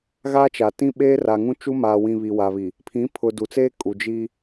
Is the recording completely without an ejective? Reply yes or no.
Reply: no